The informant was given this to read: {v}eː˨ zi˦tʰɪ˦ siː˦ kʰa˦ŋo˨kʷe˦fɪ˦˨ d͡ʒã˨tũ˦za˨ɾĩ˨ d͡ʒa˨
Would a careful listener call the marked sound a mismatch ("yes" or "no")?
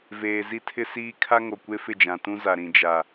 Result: no